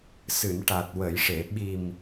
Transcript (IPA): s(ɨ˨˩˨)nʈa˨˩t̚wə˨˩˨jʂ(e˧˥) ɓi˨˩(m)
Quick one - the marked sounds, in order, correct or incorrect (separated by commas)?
correct, incorrect, correct